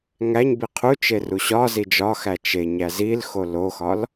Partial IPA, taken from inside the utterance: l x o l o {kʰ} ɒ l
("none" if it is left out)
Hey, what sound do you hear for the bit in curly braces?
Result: x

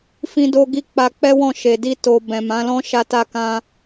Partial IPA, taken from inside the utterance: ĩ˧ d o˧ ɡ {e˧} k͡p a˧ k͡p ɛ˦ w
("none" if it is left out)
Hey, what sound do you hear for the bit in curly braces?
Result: i˧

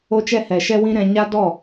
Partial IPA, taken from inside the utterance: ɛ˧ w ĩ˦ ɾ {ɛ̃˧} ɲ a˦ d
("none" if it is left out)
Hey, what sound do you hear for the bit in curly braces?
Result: ɛ̃˧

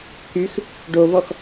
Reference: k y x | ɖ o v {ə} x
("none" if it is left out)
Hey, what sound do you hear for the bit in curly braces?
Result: ɔ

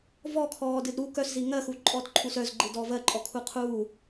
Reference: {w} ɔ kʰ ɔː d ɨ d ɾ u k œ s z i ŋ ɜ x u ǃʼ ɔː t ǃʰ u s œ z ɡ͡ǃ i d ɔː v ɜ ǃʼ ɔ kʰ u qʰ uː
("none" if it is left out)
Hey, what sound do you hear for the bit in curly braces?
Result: v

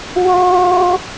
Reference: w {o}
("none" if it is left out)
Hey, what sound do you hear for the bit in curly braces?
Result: oː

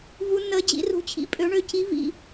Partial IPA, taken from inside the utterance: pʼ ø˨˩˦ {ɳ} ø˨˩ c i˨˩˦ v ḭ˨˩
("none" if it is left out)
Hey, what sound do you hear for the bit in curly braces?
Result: ɳ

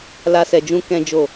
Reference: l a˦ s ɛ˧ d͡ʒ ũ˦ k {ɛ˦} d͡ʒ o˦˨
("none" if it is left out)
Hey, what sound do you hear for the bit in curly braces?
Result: ɛ̃˦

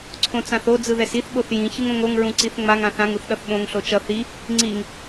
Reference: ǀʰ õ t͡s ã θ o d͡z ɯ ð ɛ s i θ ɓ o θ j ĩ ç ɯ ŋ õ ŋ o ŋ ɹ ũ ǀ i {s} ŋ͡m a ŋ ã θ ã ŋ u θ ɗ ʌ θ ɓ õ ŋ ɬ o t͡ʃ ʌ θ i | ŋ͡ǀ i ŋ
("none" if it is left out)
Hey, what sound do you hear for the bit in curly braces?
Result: θ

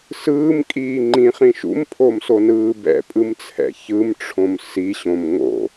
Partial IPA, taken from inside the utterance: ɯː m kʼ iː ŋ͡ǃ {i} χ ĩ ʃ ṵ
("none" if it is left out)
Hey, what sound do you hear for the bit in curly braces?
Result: ĩ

